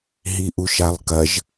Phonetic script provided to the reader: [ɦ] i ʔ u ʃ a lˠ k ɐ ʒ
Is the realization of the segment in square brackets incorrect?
no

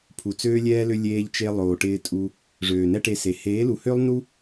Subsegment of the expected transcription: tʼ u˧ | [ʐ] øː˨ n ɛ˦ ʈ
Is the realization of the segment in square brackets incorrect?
no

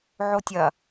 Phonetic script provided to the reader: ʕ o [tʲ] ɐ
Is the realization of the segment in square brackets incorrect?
no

